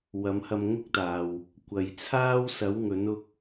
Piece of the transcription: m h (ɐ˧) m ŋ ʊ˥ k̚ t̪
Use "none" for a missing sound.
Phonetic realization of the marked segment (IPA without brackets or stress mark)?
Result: ɐ˧